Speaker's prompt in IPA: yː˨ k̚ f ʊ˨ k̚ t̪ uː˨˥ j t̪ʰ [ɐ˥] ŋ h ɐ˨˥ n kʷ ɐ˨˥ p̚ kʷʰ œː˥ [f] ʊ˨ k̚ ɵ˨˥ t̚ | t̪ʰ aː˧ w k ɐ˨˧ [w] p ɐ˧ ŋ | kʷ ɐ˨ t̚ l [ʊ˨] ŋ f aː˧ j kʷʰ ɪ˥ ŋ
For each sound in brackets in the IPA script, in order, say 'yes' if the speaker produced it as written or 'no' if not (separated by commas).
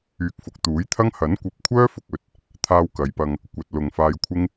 yes, yes, no, yes